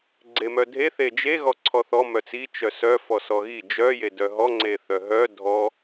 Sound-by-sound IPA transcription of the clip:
ɡ͡ǀemœdʱe θed͡ʒe ɣɔǀʰɔθɔ mœt͡si t͡ʃœsœ fɔsɔɣi d͡ʒœ jedœɦɔ ŋ͡ǀeθœɦœ dʱɔ

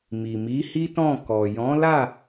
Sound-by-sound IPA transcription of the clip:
mi˨mi˨˦hi˦tɔ̃˦˨ kɔ˨jɔ̃˨˦la˦˨

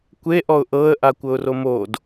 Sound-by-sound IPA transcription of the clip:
kʷeʔɔʊ̯ ʔɤə̯ʔa kʷɤʊ̯romod

